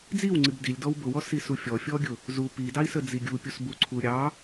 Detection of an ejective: absent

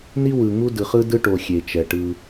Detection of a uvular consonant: present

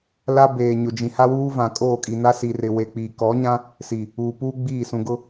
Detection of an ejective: present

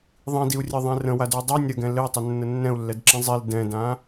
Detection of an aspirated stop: absent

